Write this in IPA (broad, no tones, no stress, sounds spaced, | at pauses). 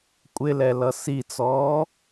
kʷʼ ɪ l ɛ l ʌ s i t͡s ɔː